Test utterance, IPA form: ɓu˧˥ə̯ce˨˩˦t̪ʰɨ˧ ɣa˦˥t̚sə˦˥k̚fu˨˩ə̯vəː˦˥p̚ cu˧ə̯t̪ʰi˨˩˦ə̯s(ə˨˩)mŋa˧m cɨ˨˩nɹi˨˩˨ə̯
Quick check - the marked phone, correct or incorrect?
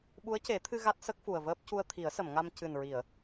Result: incorrect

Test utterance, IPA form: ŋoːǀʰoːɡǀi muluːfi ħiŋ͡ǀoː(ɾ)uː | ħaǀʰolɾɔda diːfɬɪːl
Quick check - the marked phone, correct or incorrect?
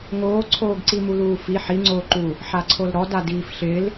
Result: incorrect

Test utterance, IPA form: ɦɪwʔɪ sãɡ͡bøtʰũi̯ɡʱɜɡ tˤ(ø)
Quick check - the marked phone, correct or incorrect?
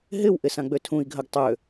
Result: correct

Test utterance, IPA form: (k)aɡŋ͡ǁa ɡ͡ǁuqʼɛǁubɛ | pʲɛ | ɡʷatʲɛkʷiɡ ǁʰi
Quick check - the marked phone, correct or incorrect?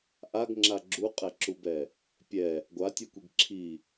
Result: incorrect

